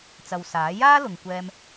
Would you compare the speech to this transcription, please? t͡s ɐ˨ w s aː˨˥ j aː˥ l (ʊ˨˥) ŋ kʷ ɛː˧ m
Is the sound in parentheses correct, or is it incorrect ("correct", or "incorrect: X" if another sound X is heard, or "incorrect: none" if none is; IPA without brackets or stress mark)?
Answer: incorrect: ʊ˨